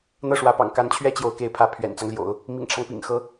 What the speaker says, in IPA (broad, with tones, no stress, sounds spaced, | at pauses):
n̪ ɤ˥˩ ʂ w ä˧˥ p ɑ̰˨˩ ŋ k a˧˥ n t͡ɕʰ ɥ ɛ˥ t͡ɕ j o˧˥ ʊ̯ k e˧˥ ɪ̯ pʰ ä˧˥ pʰ ɥ ɛ̰˨˩ n t͡s ɑ˦ ŋ l j o̰˨˩˦ ʊ̯ | m ḭ˨˩ ŋ ʈ͡ʂʰ ɑ˦ ŋ p ḭ˨˩ ŋ x ɤ˧˥